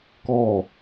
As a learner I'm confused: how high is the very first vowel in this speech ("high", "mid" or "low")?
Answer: mid